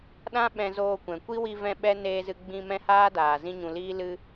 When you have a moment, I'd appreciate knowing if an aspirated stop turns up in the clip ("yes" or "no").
no